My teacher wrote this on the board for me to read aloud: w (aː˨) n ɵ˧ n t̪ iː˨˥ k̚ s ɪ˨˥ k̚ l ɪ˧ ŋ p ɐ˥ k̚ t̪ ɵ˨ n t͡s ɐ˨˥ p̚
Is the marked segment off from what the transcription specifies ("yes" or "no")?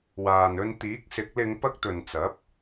no